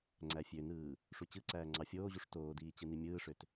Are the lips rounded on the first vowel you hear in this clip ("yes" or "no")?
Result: no